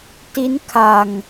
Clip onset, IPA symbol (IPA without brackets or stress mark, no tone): t